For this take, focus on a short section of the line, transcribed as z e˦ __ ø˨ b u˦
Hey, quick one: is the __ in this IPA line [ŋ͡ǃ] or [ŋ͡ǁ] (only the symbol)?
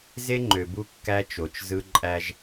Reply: ŋ͡ǃ